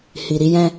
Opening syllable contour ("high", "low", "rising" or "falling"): low